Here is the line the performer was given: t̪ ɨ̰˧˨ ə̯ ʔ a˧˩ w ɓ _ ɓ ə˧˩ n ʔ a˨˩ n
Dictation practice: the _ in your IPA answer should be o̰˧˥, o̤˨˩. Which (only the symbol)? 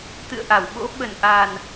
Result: o̰˧˥